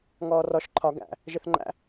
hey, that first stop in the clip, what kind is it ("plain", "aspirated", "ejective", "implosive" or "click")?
click